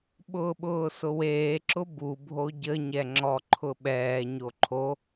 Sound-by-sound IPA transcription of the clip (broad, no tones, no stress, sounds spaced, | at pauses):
ɓ ʊː ɓ ʊː s ʊ w eː ǁ ʊ b u bʱ o ɟ ə ɲ ɛ ŋ͡ǁ ɔ ǃʰ ʊ ɓ ɛː ɲ o ǃʰ o